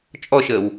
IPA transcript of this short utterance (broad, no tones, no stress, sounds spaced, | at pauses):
t͡ʃʼ ɔ ʃ əː w